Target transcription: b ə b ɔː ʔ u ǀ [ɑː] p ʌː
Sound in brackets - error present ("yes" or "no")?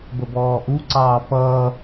no